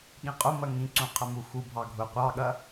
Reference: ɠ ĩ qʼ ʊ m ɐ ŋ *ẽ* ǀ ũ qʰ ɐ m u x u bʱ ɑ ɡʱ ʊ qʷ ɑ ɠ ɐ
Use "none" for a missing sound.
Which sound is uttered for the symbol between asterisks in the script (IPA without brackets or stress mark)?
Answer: ĩ